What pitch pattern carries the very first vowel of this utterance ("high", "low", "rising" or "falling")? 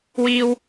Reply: low